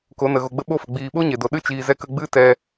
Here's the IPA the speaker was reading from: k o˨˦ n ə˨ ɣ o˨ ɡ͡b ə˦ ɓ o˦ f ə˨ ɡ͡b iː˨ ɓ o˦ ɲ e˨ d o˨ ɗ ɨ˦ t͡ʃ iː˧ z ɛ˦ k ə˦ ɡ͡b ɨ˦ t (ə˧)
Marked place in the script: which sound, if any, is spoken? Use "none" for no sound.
ɛ˧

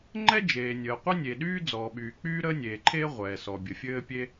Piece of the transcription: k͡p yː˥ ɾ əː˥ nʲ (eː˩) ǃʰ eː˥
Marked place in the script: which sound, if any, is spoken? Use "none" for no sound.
eː˩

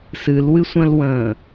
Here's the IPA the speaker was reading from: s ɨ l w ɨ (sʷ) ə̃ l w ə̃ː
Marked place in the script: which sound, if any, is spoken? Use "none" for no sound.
sʷ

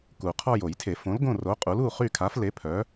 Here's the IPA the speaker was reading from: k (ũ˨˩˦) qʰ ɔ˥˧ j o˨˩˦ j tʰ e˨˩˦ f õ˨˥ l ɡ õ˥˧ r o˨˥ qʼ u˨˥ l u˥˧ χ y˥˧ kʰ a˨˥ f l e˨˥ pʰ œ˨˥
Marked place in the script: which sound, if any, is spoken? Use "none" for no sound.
u˨˩˦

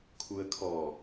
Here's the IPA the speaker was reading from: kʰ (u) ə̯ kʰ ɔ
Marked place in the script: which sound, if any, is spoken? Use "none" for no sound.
u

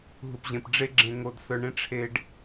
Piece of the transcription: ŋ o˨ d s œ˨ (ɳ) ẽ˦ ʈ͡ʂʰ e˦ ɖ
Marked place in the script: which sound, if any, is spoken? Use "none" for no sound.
ɳ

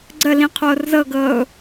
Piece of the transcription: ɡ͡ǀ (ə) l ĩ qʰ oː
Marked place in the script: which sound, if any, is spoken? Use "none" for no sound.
ə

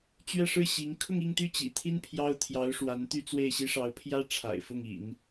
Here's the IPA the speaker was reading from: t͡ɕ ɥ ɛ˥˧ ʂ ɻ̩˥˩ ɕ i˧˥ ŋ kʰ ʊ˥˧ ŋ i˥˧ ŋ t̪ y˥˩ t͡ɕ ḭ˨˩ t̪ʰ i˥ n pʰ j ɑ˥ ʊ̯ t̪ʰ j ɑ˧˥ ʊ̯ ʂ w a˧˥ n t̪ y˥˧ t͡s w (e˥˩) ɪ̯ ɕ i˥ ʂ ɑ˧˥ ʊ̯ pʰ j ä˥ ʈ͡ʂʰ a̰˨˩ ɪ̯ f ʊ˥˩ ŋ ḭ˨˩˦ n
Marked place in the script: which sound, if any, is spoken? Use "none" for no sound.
e˥˩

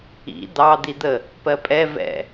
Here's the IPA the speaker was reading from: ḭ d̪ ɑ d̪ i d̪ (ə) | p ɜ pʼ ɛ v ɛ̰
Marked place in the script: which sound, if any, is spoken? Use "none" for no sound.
ə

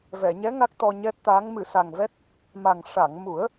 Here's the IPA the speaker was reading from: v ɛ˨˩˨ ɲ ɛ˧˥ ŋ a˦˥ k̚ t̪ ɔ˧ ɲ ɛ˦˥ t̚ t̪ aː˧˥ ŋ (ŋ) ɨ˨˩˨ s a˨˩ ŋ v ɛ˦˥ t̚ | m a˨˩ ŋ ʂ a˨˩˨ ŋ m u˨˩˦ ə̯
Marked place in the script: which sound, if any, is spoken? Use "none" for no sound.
m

